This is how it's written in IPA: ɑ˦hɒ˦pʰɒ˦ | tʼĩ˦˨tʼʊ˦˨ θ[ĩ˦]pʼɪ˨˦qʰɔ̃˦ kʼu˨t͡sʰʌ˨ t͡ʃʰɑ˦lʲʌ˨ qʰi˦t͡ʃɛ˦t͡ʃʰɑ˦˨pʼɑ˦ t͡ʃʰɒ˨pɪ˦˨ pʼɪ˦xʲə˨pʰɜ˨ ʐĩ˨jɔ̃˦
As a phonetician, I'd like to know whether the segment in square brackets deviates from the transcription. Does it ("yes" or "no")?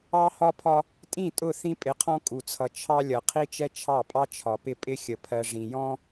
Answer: no